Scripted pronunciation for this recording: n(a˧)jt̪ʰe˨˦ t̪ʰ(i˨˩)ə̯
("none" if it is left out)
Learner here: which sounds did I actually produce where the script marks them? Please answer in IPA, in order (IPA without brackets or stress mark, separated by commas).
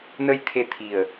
ə˧, i˨˩